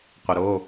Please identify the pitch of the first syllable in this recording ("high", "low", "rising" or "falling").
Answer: low